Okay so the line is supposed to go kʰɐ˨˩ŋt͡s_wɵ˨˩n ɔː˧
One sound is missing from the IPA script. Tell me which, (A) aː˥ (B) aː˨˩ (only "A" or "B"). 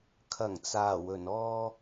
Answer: B